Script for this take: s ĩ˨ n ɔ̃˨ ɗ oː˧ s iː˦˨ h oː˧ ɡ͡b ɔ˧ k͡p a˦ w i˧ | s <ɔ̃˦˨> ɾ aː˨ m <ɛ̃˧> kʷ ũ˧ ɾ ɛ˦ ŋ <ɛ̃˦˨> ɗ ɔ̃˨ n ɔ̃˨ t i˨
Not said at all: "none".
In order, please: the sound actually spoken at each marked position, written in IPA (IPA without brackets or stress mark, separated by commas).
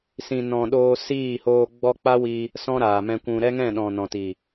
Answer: ɔ̃˧, ɛ̃˧, ɛ̃˦˨